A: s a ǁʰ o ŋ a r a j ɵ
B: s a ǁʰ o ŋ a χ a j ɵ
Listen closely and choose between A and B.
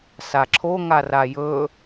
A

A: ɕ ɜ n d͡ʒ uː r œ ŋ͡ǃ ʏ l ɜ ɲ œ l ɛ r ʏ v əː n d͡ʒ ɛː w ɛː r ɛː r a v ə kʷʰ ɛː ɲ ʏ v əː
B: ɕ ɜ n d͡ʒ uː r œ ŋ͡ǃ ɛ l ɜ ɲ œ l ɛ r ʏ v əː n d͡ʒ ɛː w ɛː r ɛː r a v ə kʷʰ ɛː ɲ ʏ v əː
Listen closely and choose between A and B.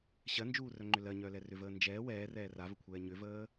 A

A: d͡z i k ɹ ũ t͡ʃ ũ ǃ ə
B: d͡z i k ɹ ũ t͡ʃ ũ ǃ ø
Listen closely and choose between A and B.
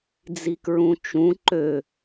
B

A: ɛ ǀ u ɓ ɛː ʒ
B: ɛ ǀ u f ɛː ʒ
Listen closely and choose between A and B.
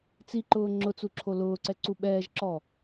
A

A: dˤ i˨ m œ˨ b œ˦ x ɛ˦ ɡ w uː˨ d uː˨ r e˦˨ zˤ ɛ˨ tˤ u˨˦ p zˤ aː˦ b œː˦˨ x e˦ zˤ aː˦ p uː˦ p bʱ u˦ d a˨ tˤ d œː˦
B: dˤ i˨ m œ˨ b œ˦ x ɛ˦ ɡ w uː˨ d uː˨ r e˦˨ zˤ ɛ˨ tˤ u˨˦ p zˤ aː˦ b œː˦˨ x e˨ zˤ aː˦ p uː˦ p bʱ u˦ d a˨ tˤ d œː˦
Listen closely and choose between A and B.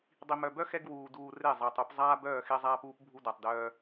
A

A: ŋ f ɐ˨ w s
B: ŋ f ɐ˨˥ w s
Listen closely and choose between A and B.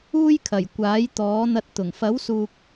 B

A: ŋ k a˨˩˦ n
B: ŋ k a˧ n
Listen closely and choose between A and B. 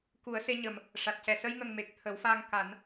A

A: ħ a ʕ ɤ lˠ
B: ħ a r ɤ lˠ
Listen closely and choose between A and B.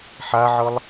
A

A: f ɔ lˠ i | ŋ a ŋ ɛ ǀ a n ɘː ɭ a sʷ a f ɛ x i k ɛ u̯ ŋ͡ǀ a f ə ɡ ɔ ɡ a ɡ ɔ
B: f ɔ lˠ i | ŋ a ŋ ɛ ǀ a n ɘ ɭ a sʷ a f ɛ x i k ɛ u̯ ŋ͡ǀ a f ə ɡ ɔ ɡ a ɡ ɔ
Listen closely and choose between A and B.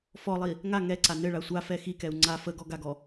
B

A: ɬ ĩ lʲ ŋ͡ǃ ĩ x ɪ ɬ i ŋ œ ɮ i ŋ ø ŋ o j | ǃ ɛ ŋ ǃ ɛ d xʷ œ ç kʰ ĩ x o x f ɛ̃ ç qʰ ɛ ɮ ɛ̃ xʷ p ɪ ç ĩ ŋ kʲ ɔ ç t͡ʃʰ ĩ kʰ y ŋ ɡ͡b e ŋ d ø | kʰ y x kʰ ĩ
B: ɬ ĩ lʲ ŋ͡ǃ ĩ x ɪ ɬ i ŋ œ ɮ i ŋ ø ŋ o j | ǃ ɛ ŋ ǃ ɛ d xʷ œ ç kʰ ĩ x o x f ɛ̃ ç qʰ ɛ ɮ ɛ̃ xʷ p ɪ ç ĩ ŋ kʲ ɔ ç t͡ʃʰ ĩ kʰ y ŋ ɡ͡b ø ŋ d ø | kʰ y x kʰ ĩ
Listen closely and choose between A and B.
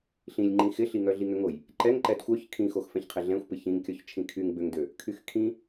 B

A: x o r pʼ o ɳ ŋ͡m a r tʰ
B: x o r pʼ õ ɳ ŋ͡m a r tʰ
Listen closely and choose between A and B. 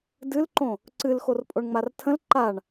A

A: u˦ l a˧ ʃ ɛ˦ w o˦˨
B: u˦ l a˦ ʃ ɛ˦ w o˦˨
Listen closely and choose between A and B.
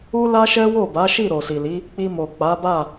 B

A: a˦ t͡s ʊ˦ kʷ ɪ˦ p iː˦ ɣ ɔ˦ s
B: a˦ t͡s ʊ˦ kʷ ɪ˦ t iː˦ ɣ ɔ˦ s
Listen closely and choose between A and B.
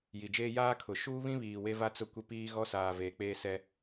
A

